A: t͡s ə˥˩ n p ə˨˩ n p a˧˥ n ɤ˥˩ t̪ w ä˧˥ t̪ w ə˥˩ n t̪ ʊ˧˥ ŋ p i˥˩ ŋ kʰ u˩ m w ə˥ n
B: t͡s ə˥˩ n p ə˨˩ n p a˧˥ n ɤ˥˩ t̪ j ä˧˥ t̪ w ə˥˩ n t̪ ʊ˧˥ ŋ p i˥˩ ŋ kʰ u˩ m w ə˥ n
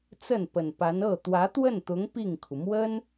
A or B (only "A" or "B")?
A